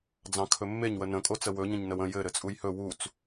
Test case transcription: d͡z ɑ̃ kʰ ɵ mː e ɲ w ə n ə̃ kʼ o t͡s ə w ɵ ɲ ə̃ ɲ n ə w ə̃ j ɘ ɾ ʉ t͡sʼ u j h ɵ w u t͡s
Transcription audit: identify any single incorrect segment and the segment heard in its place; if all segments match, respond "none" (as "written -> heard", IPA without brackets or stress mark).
ʉ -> ɘ